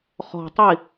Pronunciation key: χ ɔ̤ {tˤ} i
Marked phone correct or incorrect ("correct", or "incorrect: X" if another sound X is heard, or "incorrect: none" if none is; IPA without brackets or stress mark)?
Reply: correct